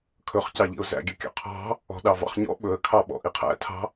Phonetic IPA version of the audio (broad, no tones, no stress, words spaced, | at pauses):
kʰɵχcɑʎḭʊ̯ zæ̰ɡʲøkʲɑ̰ qʰɑ̤ | ɔ̤ɗɑvɑ̰χɲɔ̰ ɓɵə̯kʰɑɓɔ̰ ʔiqʰæ̰tʰɑ̤